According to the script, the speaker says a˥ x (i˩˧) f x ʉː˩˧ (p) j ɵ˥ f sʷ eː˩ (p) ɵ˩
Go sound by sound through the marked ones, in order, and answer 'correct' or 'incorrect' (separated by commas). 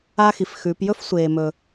correct, correct, incorrect